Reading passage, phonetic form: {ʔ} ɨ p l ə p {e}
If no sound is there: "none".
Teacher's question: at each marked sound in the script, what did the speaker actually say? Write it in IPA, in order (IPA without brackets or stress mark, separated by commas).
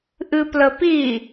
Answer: ʔ, i